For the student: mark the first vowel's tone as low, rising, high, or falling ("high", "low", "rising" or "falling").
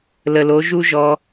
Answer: low